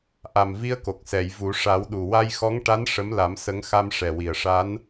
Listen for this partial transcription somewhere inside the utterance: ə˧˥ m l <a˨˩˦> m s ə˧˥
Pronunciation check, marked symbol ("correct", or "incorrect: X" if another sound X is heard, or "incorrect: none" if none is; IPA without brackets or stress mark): correct